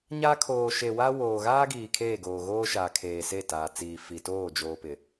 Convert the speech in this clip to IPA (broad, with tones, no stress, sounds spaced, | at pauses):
ɲ a˦ kʰ oː˨ ʃ e˨ w a˦ w oː˨ ɣ aː˦ ɡ iː˨ kʰ eː˦˨ ɡ oː˨ ɣ oː˦ ʃ aː˨ kʰ eː˨ s e˦˨ t aː˨ t͡s iː˨ f i˨ t oː˦˨ d͡ʒ oː˨ p ɪ˨